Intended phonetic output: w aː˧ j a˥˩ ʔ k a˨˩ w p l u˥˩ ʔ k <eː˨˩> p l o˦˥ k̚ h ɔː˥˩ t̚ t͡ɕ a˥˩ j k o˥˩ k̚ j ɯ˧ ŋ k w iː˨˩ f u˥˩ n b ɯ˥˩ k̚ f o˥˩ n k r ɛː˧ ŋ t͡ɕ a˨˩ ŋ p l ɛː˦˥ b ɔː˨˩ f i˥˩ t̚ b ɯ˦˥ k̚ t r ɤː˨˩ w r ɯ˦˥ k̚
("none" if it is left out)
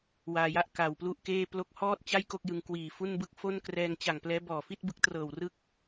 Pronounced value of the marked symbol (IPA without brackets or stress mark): eː˥˩